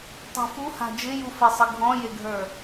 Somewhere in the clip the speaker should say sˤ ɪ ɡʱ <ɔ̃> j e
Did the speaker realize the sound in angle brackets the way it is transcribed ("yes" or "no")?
yes